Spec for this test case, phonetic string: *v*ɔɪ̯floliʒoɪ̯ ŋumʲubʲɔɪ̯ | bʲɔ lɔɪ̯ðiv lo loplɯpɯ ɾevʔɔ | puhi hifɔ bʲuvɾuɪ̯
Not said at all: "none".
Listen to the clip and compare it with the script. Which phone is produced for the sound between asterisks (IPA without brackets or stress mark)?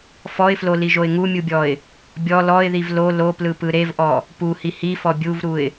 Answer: f